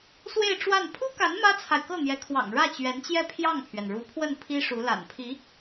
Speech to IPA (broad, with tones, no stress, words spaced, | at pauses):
swe˥˧ɪ̯ʈ͡ʂwa˥˩n pʰu˥ka˧˥n mä˥t͡sʰa˨ɪ̯ kɤ˥˩n̪jɛ˧˥kʰwɑ̰˨˩ŋ ɻä˥˩t͡ɕɥɛ˧˥nt͡ɕjɛ˥˧ pʰjɑ˥˩ŋpʰɥɛ˩nɻu˧˥pʰwə˥˩n pʰi˥ʂu˧˥ la̰˨˩npʰi˧˥